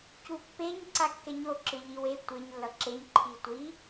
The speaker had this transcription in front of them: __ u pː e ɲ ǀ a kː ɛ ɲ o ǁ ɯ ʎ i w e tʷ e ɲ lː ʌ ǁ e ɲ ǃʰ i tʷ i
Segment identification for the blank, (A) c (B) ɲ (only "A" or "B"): A